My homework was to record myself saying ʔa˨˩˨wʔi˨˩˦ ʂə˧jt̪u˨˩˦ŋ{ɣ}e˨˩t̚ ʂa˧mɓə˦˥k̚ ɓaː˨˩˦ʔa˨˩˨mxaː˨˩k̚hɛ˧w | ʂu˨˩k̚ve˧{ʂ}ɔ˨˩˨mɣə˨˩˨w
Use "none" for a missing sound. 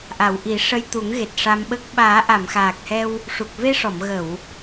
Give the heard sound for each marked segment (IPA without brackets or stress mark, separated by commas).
ɣ, ʂ